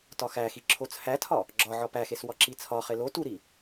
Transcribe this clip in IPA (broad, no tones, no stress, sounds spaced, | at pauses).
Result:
t ɒ x æ x i ǁʰ o t͡sʰ æ tʰ ɒ | ɡ͡ǁ ɒ ʕ ɒ p æ x e s w ɒ ǁ i t͡sʰ ɒ χ e l o t u ɾ i